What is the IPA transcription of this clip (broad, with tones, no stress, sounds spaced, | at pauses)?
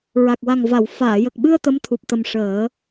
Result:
ɹ a˨˩ k̚ w a˨˩ ŋ v a˨˩˨ w f aː˨˩˨ j ə˨˩ k̚ ɓ ɨ˧ ə̯ t̪ ə˧˥ m t̪ʰ u˨˩ p̚ t̪ ə˨˩ m ʂ əː˨˩˦